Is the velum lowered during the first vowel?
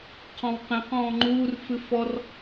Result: yes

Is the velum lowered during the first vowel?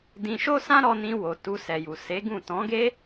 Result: yes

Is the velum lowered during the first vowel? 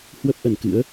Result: no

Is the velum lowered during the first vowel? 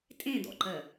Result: yes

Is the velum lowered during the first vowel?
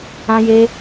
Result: yes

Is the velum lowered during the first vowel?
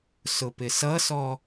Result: no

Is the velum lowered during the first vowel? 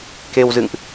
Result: no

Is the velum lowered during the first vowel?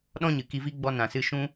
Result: yes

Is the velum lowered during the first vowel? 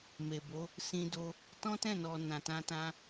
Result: no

